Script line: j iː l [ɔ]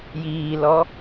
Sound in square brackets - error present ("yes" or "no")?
no